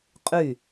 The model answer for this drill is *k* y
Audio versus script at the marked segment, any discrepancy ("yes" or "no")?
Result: yes